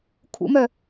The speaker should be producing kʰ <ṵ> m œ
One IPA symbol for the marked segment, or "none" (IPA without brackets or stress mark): ṵ